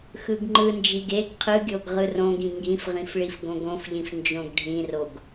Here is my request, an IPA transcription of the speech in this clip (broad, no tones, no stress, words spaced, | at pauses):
xɯɡŋ͡ǃɯnd͡ʒiɡ eɡ qʰɯɡʲoɡ ʁɯrõɡĩ ŋɡĩfʁĩf ɭifɡõɡõfʎĩf nd͡ʒõɡɖʱĩroɡ